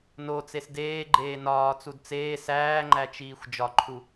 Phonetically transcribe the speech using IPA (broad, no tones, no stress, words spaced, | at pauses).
not͡ses deːɡ͡ǃeː nɒːt͡sud t͡seː sæːŋ͡ǃæt͡ʃiːxʷ d͡ʒɒǃʰu